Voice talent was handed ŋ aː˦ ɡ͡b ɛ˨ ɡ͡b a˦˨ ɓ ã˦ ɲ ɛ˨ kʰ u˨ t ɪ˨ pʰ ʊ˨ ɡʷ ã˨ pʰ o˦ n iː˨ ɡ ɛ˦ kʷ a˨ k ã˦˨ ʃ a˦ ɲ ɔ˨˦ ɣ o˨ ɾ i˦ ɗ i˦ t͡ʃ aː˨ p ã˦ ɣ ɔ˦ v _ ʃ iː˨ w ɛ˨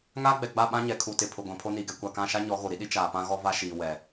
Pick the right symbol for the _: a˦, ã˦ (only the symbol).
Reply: a˦